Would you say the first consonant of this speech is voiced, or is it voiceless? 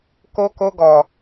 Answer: voiceless